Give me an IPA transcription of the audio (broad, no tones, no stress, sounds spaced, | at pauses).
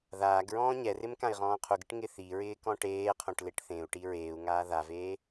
ð aː ɡ ɹ ɔ̃ː ɲ ɛ r ɪ m k ã i̯ ʁ ɔ̃ː qʰ u ɡ ɪ ʈ ŋ ɪ θ i ɹ ɪː k ɔ̃ ʈ eː qʰ õ ʈ l e ʈ θ ẽ u̯ ʈ i ɹ eː u̯ ŋ aː ð a v eː